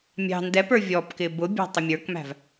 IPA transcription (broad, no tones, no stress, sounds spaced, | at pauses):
mʲ ɑ̤ n d ɛ p ə˞ vʲ ɔ p k ɪ b ʊ bʲ ɑ̤ tˤ ʊ mʲ ə˞ k m æ̤ v